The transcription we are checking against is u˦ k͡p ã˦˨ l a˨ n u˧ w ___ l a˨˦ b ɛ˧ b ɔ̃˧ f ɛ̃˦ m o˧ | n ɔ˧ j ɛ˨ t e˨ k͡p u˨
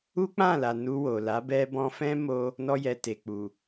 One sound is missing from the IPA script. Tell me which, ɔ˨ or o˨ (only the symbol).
o˨